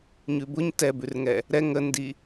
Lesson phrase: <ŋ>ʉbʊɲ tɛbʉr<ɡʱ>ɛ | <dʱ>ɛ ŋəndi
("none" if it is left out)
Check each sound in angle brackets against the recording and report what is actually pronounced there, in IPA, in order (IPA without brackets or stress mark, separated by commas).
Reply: ɲ, ŋ, ɾ